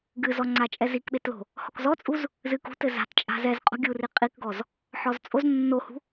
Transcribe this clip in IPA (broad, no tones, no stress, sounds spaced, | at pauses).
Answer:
ɡ ɨ z ɔ ŋ͡ǀ a t͡ʃʼ ɛ z i k ɓ e t l o̤ | h ɔ k z ɔ t͡sʼ u z | z ɨ k ṳ t ɘ z a̤ t t͡ʃʼ a̤ z ɛ z qʼ o̤ ɡʲ u r i qʼ i k ɡ ɔ z | ħ ɔ z t͡sʼ o z nː o h ṳ